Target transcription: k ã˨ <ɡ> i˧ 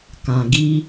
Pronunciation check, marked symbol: correct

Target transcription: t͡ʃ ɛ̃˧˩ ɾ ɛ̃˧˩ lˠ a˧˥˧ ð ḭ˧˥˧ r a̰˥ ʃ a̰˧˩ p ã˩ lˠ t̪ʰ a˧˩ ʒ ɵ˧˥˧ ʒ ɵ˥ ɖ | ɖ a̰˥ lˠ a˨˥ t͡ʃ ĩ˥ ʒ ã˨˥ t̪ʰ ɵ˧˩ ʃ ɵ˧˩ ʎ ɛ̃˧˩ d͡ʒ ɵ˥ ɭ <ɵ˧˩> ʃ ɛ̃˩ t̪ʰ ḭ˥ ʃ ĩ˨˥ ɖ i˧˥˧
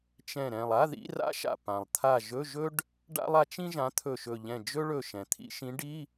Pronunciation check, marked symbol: correct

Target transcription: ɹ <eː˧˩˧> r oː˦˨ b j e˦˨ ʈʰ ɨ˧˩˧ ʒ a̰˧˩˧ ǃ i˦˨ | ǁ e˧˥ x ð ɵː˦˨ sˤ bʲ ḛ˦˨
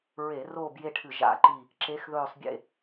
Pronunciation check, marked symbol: incorrect: e˧˩˧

